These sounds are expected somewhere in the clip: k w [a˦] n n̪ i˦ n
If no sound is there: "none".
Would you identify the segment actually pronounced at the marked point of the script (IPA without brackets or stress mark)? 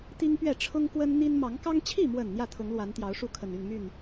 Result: ə˦